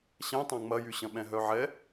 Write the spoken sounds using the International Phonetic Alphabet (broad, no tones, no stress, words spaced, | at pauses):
ɕɛ̃tˤã ŋ͡mɐjy ɕɐ̃ɓɛ̃ɦœʕɛ